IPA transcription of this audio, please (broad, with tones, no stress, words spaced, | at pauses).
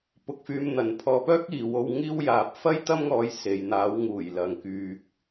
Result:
pʊ˧k̚fyː˧mn̪ɐ˨˧n pʰɔː˧pœː˥k̚iː˨˧wo˧w ŋiː˥wjaː˧p̚ fɐ˥jt̪ɐ˥mŋɔː˧j se˧j n̪aː˨˧wŋuː˨˩jlɐ˨ŋ kyː˨k̚